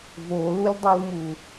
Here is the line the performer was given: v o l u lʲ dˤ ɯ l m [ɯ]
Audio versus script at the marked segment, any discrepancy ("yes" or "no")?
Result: yes